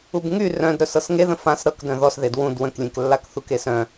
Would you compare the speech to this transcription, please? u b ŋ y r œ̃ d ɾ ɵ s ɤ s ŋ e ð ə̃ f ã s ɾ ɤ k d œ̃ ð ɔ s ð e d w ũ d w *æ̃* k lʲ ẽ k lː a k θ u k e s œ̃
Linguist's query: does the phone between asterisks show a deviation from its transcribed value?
yes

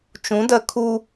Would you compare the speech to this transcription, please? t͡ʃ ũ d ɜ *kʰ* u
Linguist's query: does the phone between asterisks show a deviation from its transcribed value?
no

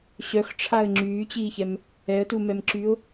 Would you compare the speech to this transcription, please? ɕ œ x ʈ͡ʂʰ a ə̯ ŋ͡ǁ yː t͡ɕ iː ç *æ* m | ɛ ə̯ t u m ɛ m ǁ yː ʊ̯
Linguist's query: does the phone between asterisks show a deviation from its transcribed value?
yes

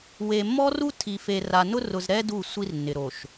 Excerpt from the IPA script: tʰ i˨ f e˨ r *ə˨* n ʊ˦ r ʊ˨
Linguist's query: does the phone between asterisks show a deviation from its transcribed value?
yes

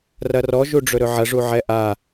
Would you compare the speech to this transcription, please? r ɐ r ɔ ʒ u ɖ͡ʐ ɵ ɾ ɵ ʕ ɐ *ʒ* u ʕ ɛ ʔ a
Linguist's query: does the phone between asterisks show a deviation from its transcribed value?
yes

